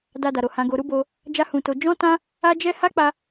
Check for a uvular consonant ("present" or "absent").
absent